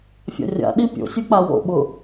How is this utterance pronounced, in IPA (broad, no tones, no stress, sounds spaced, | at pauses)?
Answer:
fʲ a̰ rʲ a̰ ɗ i pʲ o̰ sʲ u k͡p a w o̰ ɓ ʊ